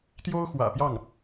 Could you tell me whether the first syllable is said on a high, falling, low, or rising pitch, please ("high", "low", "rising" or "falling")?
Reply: high